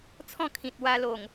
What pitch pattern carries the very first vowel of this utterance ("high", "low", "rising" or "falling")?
falling